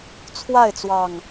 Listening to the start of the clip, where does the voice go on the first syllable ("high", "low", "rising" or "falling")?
falling